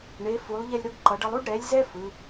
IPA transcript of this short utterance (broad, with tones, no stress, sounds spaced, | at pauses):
ɳ e˨˦ f u˨˦ lˠ ʎ ɛ˥ lʲ ɾ o˥ ɡ ǃ ʌ˨˦ ɖ ʌ˥ lˠ u˥ ɖ ɾ ɛ˨˦ lʲ z ɛ˥ f ɯ˨˦